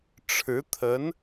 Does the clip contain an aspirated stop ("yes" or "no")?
yes